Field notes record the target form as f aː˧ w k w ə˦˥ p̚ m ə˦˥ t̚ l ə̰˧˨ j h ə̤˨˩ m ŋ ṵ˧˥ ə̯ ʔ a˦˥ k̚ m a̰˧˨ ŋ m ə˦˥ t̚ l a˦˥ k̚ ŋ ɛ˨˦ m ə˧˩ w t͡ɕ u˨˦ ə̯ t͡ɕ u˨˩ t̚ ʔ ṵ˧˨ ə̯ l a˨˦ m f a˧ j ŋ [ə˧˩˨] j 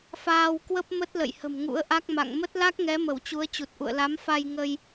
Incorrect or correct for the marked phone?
incorrect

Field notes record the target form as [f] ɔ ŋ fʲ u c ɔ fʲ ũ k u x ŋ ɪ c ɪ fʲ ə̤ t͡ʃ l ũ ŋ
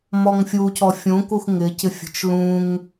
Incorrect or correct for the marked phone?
incorrect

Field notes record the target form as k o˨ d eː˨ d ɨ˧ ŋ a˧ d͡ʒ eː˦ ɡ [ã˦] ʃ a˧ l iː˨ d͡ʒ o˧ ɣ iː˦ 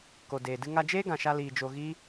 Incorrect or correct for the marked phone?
incorrect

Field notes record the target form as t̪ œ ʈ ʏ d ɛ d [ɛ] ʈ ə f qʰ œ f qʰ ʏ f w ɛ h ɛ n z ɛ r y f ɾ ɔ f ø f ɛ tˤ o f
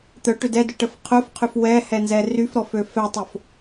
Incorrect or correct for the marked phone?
incorrect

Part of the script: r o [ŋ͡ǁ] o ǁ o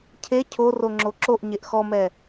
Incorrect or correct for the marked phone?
correct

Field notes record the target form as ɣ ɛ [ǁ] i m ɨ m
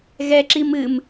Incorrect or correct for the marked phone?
correct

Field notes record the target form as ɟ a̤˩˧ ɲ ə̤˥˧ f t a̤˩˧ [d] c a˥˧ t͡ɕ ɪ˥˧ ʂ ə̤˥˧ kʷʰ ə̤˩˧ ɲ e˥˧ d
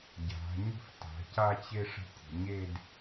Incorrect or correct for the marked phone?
incorrect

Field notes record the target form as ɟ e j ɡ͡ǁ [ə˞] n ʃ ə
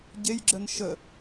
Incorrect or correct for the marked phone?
incorrect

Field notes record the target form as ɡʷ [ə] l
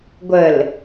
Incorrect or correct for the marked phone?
correct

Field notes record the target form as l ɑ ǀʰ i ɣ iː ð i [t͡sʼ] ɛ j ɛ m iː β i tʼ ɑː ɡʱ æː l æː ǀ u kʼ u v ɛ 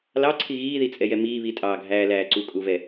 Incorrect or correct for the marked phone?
correct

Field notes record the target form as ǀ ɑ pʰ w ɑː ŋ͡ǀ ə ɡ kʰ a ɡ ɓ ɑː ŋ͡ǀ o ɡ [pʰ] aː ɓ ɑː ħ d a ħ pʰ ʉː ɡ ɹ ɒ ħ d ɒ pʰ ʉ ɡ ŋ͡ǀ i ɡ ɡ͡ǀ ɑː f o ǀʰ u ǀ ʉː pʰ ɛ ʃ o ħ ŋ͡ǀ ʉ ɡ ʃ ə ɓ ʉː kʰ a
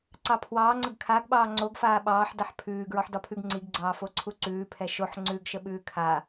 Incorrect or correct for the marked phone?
incorrect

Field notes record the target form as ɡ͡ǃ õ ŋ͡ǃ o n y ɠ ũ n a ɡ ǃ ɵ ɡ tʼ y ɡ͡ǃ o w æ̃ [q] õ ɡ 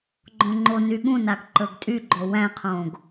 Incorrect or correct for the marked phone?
incorrect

